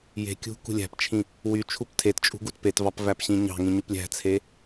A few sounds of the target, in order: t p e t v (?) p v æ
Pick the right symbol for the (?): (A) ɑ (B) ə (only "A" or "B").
A